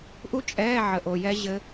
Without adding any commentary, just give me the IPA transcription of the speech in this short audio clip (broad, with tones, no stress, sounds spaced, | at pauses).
ʔ u˦˥ t͡ʃʼ ɛː˧˥˧ ʕ ə˦˥ ʔ o˧˥˧ j ɛ˦˥ ʑ ɘ˦˥